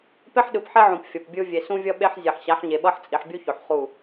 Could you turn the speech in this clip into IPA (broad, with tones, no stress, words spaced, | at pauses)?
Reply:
pe˦ħɗɯ˨pħe˦ʕũ˨p fʲʌ˨pbʲɯ˦ vʲe˨ sũ˦vʲʌ˦ ɓe˦ħzʲe˨ħ ɕa˨˦ħɲe˨ɓʌ˦ħ t͡sʼi˨ħbʲu˦ço˨ħ χu˦˨